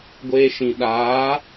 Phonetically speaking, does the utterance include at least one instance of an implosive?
yes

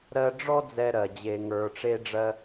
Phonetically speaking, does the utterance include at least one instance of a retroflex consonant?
yes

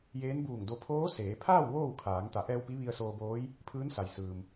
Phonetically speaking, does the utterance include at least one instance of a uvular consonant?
no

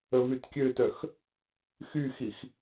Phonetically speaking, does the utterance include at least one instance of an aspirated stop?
no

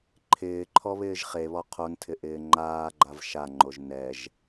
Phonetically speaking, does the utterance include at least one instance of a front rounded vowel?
no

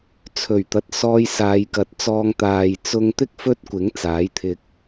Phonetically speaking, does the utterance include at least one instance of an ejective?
no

